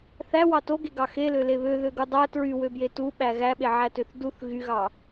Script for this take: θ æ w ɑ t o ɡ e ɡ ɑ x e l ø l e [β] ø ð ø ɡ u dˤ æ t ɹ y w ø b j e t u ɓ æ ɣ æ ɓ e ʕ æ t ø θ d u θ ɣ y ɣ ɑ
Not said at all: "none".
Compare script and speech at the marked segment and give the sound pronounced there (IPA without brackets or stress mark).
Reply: β